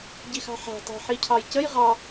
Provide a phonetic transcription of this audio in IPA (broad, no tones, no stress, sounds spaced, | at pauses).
ɟ i x ɑ̤ ħ æ̤ tˤ ɛ̤ ħ i cʰ ɑ j c ə j ʁ ɑ